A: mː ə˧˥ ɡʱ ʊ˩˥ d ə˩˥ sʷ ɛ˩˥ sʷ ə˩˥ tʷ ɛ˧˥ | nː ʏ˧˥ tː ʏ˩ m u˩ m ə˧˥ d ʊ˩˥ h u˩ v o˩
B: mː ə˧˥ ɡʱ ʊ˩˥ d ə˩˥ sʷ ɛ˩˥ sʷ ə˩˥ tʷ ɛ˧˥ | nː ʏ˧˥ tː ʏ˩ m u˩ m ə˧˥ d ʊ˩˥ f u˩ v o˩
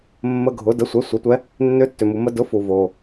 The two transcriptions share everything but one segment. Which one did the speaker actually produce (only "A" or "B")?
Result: B